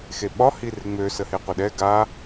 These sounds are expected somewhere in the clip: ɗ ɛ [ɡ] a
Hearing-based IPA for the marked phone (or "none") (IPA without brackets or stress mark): ɡ